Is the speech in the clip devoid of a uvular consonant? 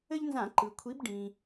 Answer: yes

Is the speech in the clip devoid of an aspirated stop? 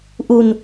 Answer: yes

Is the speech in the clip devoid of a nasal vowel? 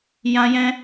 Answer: no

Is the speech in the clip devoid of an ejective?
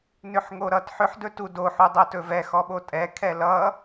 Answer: no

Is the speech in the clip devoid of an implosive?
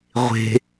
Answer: yes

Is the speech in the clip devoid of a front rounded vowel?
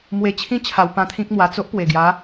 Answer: yes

